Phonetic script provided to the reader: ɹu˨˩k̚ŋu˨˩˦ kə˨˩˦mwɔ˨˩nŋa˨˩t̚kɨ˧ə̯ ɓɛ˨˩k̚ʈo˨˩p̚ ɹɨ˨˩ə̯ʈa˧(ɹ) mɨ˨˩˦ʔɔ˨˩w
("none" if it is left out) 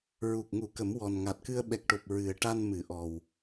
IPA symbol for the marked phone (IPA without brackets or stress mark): n